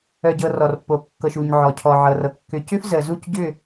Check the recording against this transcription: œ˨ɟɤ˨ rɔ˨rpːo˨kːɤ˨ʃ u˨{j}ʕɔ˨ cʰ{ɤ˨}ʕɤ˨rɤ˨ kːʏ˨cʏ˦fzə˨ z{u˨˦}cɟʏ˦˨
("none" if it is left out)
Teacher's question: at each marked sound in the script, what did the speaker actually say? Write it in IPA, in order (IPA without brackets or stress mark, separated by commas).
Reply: ɲ, ɔ˨, u˦˨